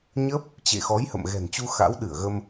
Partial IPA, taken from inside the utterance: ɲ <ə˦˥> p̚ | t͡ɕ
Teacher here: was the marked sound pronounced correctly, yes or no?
yes